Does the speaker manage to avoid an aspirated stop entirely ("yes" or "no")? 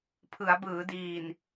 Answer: no